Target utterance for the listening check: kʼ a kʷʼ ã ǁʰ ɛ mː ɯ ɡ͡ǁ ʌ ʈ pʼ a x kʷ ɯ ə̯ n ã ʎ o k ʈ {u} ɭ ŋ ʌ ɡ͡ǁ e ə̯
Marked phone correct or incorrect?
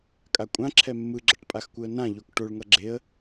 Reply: incorrect